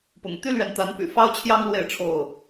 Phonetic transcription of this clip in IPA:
p ʊ̰˨˩ ŋ t̪ y˦ l ɥ ɛ˨ n t̪ a˨˦ n p y̰˨˩ f ɑ˦ ʊ̯ t͡ɕʰ j ɑ˦ ŋ l w e˥˨ ɪ̯ ʈ͡ʂʰ o˥˨ ʊ̯

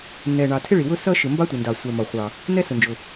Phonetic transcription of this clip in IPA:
n ɛ˩ ɳ ɑ˩ tʰ ɪ˥ ɭ i˩ w ʊ˥ s ʌ˥ ʃ ɪ˩ m b ɑ˥ tʷ ɪ˩ n d ɑ˩ sʷ ɛ˩ m ɒ˩ χʷ ɑ˩ | n ɛ˥ s ʊ˩ n d͡ʒ ʊ˩

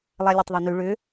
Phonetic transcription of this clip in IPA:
lˠ a lʲ e tˤ ðˤ ʏ n y ɭ ʏ

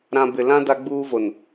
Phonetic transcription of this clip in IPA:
ɾ ã˦ b ɪ˨ l ã˦ d a˦ ɡ͡b uː˦ v o˨ n

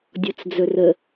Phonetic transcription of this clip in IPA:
dʲ ɔ t͡s d͡z ɵ r ə

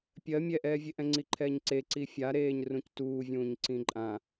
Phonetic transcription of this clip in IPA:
pʲ ɜ mʲ ɛ ʔ ɛː vʲ e ʔ ɛ̃ ŋ͡ǀ i ǃʰ ɛː ɲ ǀ e ǀ i fʲ a ɾ eː ɲ r ũ c t uː vʲ ũː ɲ ǀ ĩ ǃʼ ã

